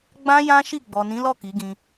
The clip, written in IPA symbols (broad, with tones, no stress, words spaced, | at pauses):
ɡ͡bã˦jã˦ʃi˦˨ ɡ͡bɔ˨nĩ˨˦lɔ˦˨ ki˨˦ɡĩ˧